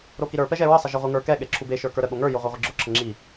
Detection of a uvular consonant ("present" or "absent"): present